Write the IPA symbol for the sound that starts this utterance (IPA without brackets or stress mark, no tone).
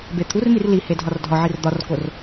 b